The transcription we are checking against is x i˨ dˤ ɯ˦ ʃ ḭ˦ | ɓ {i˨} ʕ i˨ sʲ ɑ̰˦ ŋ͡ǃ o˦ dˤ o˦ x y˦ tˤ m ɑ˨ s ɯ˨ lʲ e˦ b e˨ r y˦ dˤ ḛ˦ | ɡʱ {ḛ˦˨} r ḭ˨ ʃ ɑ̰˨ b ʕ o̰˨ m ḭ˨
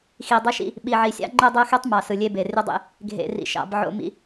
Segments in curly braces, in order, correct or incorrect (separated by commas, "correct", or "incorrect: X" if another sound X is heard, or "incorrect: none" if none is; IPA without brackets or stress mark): correct, incorrect: ḛ˨